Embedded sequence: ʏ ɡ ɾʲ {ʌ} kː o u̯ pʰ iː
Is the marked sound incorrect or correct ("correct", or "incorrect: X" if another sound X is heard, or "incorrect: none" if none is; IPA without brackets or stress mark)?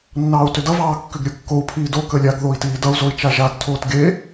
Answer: incorrect: ə˞